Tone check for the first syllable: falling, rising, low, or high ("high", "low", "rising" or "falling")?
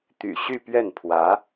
low